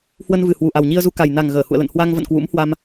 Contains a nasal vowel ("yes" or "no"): no